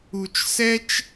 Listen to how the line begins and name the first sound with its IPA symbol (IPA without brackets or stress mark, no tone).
u